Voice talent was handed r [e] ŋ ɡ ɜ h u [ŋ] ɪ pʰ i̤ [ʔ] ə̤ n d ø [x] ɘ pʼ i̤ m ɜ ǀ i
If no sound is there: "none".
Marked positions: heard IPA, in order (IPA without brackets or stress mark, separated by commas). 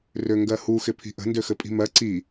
ø, x, ʔ, x